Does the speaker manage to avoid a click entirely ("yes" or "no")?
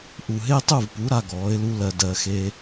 yes